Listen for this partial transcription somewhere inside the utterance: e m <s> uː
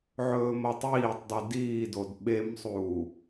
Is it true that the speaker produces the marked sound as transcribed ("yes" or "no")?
no